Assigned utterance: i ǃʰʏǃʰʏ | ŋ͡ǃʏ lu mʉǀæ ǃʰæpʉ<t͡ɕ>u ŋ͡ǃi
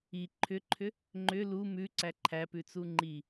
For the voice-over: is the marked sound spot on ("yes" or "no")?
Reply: no